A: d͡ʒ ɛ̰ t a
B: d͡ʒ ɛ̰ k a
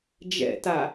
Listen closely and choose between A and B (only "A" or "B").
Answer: A